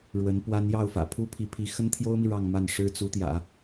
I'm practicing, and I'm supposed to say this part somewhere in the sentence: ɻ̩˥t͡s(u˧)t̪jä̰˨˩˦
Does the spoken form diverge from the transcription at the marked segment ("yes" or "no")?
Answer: yes